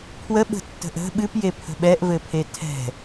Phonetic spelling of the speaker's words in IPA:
pʰwəɓə̤tːə̤ʔ ə̤ ɓɨpjepʰə̤ ɓɛʔvɘpʰe tʰɛ̤

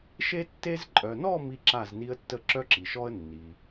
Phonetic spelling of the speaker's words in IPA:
ʃe˥tːe˥z ǃʼœ˨nɔ˥˧ mi˥ǁa˥˧zni˥ə̯tːə˥ ǁœ˥ǁi˨ʃɔ˥ə̯ nːi˨

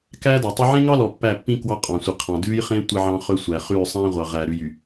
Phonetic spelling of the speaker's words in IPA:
kæː˦dɑ˨tˤɛ˦ ʕẽ˦ŋɑ˦lɔ˨ pːæ˦˨pːĩ˦ kwɑ˦qʼɑ̃˨sʷi˨qʰɑ̃˨ dʉː˦jχẽ˦ tʷe˦ʕɑ̃˦χɵ˦sʷæ˨ χʉː˦˨sˤæ̃˦ʁʷɑ˨ʁæ˨ ɾʉ˨jy˨

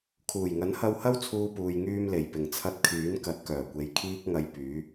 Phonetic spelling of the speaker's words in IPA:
kʰuː˨˩jŋɐ˨˥nhɐ˧whɐ˥w t͡sʰuː˥puː˧j ŋyː˧mle˨˩j pɪ˨˩ŋt͡sʰɐ˧t̚ kʰyː˨˥nkɐ˨˥t̚kœː˨˩kʷe˨j kʰiː˥k̚ŋɐ˧jpyː˨˥

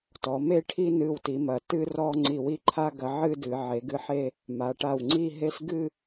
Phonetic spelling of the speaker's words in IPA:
tɔ˩˧me˧ʈʰi˧ nɨ˧˩wti˩˧mɐ˩˧ tɨ˥rɔ˥˧ ŋ͡ǀi˧˩wi˥˧ǃʰa˥ ɡɐ˧ʕɨ˥˧dɨ˩˧ ʕe˩˧ɡɨ˧ħe˥˧ | ma˩˧ʈa˧˩wŋ͡ǀi˥˧ɦe˥s ɡɨ˥˧

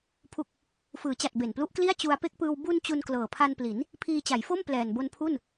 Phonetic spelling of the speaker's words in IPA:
pʰu˨˩k̚ | fɯː˩˦t͡ɕa˨˩t̚ be˨˩nplu˦˥ʔkli˥˩a̯ t͡ɕu˧a̯pe˥˩k̚pɯː˧w bu˧n t͡ɕu˧nklɤː˨˩pʰa˧npli˩˦n | pʰiː˧ t͡ɕa˩˦jfo˥˩m plɛː˨˩nbo˧npʰu˥˩n

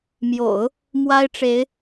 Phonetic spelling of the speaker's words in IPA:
mjo̰˨˩˦ʊ̯ | mwa˥ɪ̯ʈ͡ʂe˧˥ɪ̯

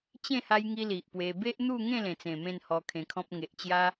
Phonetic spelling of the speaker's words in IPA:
t͡ɕẽ˥˧ha˧jŋi˧ li˨ʔpwe˧ be˦ʔn̪u˥˧ ŋẽ˥˧lẽ˨˩t͡sẽ˨˩ mẽ˥˧nhɔ˧kʰẽ˧kʰɔ̃˦p̚ ŋe˨ʔt͡ɕja˦

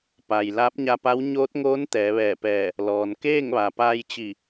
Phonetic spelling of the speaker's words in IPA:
pa˩j laː˧˥p̚ɲa˧pa˧˥w ɲoː˧˥t̚ŋoː˧˥n t̪ɛː˩˧ʋɛː˧˩pɛː˧˩ | lɔː˩nkeː˥˨ŋ ʋa˩paː˧jt͡ɕi˧˩

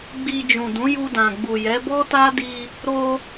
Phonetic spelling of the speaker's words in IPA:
ɡ͡bi˧ d͡ʒũ˨dũ˨˦ ju˧dã˨ɡ͡bu˨jɛ˨˦ bɔ˦ta˦di˧ | ɾo˧

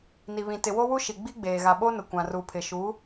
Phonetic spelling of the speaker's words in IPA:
ni˨βĩ˨ tɪ˨wo˦wu˦ ʃi˨ɡ͡bi˦ɡ͡beː˨ ɣa˨ɓo˦nʊ˨ kʷã˨ru˨pʰɪ˨ ʃu˨˦

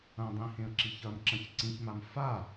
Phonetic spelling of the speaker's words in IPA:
ɐ̃dˤĩ hẽə̯ǁiçɐmǁɐ̃ç ǀĩçmam fa

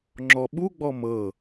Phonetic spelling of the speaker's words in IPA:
ŋ͡ǁɔɓuɡ͡bɔ mɤ

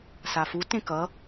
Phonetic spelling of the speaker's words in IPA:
safu tẽkʌ

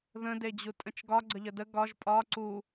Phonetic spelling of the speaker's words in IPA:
ðə̃ded͡ʑu tʼə̃t͡ʃɡɒ ɡ͡ǀəʎədə ɡɒʒ pʼɒ ǀu

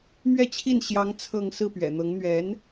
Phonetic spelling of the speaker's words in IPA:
mɥɛ˥˧t͡ɕʰi˥˩n ɕjɑ˧˥ŋ t͡sʰɤ˥˧ŋ sɹ̩˥˩pɥɛ̰˨˩n̪ɤ˧˥ŋ n̪ɥɛ˧˥n

